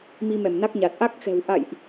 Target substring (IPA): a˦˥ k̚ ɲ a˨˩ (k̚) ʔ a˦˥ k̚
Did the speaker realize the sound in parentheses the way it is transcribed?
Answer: no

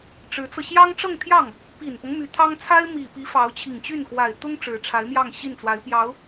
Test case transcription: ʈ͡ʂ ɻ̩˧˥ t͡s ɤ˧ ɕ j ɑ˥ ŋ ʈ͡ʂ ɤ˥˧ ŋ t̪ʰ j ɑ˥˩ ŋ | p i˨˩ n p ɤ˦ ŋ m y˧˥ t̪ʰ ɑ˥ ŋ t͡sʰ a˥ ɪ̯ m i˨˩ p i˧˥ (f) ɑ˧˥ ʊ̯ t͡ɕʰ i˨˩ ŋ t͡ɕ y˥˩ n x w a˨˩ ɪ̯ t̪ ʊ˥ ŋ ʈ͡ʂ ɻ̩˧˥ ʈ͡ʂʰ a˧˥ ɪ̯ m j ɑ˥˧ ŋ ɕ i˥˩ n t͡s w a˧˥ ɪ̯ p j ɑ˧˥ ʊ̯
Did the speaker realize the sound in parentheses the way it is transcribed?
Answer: yes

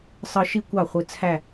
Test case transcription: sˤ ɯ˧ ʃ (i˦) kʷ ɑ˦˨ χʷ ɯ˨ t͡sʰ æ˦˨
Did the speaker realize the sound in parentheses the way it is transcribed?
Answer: yes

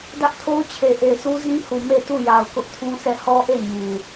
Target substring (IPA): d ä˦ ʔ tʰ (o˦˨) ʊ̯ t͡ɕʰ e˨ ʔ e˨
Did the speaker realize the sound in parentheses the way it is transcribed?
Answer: no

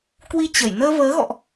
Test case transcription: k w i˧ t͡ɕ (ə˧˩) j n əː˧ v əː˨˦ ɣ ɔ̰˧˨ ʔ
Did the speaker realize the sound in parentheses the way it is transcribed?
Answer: yes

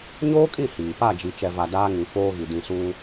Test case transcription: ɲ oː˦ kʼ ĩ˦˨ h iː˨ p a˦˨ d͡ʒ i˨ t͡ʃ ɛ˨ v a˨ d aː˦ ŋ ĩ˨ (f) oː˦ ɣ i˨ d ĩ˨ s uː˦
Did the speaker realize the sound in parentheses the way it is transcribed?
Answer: yes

